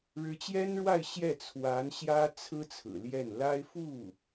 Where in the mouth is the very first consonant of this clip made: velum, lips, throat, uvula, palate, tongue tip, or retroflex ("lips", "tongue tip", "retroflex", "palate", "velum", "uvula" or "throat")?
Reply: retroflex